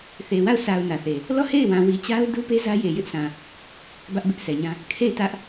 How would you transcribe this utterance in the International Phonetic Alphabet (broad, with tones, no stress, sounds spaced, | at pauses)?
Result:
θ e˨ w a˦˨ ʊ̯ sʰ a˨ ʊ̯ n ä˨ θ e˨ | l ɔ˦˨ h e˦˨ ɪ̯ w ã˨ w i˨ t͡ɕ a˦ ʊ̯ d u˦ p e˦ z ä˦ j e˨ j ɪ˦ ʔ sʰ ã˨ | b ä˦ ʔ b ɪ˦ ʔ sʰ ɛ˨ ɲ ã˦ | kʰ e˦˨ ɪ̯ t ä˦ ʔ